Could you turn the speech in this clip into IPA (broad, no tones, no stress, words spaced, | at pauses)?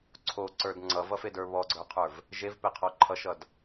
ǀʰoǀə˞d ŋ͡ǀʌvʌfedə˞ βɔɡ͡ǀə˞qʰə˞v | ʒevpeqʰɔ ǃʰʌʃʌd